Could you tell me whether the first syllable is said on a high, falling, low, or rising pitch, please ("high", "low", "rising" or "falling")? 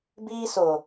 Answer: high